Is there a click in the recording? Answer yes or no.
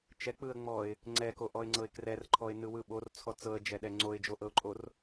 yes